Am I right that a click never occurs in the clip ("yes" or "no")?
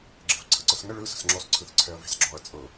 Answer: no